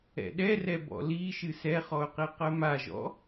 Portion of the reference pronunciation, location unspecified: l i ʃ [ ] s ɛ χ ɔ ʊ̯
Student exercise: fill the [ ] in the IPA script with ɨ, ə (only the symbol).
ɨ